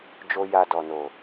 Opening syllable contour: high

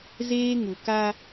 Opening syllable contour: high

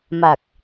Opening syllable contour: low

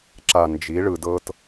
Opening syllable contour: low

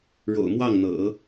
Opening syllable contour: low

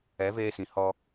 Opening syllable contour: rising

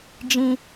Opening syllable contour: high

